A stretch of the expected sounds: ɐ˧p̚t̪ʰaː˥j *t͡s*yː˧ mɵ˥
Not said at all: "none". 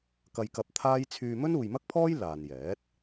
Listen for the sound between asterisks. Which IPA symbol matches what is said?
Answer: t͡sʰ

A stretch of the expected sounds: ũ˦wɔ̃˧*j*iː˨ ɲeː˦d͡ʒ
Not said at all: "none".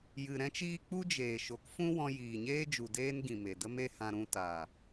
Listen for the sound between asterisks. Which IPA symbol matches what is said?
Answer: j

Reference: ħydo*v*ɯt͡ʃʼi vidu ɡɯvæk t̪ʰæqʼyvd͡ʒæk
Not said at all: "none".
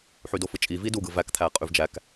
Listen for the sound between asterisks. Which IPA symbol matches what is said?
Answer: f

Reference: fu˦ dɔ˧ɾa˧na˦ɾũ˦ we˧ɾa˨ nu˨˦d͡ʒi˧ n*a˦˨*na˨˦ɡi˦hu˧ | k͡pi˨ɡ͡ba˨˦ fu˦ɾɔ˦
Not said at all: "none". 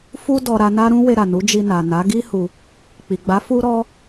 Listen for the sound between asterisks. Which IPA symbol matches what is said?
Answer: a˨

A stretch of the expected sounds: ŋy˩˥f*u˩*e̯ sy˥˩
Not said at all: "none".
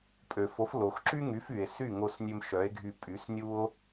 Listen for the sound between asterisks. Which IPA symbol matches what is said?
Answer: y˩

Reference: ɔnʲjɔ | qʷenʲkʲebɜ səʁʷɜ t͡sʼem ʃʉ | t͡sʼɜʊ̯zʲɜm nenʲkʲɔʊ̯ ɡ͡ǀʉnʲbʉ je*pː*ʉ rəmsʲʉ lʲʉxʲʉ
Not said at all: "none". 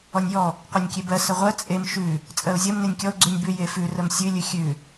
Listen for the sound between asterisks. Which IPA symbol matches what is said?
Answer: f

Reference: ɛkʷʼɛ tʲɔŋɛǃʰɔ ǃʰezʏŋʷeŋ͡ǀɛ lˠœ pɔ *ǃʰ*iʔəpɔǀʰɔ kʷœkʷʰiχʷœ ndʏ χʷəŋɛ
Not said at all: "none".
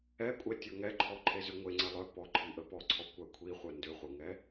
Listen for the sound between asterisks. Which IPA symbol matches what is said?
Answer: ǃʰ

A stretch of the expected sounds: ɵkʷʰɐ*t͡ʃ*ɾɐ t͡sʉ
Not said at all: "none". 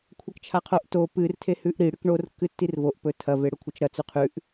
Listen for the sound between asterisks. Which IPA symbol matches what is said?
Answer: t͡ʃ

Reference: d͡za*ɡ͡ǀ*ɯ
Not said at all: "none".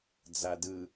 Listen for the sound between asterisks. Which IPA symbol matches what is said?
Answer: d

